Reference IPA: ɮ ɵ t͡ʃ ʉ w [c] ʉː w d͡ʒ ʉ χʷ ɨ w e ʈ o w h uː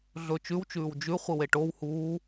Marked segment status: incorrect: t͡ʃ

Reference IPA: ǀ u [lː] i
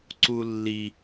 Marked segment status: correct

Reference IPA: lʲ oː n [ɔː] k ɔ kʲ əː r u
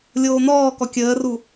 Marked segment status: correct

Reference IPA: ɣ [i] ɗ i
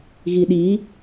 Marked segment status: correct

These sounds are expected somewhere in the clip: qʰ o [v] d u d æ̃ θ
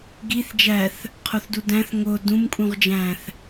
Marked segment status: incorrect: θ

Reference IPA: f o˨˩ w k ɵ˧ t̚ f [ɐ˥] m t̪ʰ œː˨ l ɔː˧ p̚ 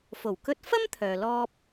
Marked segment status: correct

